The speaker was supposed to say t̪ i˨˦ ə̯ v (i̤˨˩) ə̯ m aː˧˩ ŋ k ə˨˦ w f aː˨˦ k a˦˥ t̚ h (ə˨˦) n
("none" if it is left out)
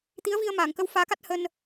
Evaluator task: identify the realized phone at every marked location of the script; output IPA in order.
i˧, ə˧

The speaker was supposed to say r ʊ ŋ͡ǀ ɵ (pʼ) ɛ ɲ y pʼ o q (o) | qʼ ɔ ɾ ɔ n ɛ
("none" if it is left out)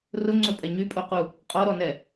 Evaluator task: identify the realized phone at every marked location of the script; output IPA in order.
pʼ, u

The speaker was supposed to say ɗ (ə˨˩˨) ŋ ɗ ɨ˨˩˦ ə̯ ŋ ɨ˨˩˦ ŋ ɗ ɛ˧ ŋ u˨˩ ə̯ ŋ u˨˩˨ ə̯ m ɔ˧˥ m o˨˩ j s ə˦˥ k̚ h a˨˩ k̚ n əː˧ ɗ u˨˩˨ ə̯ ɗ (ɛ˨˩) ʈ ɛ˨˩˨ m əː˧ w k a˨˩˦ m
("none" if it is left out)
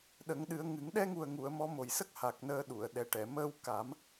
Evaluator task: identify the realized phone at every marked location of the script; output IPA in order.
ə˨˩˦, ɛ˨˩

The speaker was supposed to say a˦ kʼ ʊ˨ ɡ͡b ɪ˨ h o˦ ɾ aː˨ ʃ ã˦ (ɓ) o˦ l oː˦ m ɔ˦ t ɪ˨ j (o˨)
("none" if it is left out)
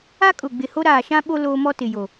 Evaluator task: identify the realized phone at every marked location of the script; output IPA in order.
ɓ, o˨

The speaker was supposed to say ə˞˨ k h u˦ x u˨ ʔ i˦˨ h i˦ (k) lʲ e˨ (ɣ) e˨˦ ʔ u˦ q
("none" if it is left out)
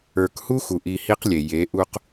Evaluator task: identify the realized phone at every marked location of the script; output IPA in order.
q, j

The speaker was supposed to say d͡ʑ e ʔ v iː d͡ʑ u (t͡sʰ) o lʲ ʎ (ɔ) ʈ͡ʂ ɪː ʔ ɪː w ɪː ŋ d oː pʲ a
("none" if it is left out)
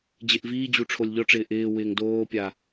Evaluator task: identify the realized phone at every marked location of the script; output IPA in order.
ʈ͡ʂʰ, ɔ

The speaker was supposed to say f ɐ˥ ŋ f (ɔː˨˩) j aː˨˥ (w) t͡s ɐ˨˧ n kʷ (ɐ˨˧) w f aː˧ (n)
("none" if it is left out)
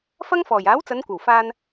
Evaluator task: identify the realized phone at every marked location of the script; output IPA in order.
ɔː˨˩, w, ɐ˨˩, n

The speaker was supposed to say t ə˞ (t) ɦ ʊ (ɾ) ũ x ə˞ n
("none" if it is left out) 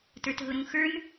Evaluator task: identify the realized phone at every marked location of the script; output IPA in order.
t, ɾ

